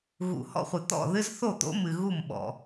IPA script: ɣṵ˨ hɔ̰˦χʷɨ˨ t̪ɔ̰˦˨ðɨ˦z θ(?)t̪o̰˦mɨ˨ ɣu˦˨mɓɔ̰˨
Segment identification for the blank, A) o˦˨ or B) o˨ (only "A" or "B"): A